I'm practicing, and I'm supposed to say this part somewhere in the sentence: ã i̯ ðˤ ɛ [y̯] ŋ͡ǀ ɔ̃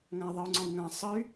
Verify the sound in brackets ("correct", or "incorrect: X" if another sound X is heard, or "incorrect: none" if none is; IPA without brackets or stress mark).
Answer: incorrect: u̯